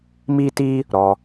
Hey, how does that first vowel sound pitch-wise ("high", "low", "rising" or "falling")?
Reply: high